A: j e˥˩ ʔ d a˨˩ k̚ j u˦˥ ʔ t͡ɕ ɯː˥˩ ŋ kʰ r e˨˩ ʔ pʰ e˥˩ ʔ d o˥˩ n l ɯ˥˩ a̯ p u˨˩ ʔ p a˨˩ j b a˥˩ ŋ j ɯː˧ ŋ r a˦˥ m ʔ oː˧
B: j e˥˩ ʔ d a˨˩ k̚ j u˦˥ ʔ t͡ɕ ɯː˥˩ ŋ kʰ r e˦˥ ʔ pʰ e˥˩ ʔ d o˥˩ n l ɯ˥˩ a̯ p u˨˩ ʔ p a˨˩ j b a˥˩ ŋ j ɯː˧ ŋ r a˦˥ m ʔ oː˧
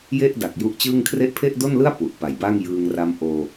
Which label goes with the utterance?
B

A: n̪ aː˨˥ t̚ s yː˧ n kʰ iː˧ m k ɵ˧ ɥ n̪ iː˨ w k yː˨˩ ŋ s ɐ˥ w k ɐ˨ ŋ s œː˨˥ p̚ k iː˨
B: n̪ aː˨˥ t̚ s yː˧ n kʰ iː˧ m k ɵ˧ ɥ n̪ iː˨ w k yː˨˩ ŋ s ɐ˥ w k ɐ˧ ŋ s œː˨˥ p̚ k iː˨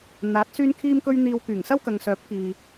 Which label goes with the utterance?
A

